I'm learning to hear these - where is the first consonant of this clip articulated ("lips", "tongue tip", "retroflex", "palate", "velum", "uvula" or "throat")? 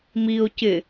lips